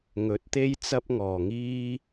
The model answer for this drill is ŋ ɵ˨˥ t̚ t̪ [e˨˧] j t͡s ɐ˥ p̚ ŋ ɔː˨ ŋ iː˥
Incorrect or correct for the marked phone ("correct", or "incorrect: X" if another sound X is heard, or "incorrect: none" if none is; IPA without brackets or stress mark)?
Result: incorrect: e˥